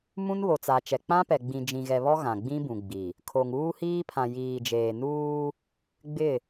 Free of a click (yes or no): yes